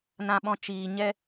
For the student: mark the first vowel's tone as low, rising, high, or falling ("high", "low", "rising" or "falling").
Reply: low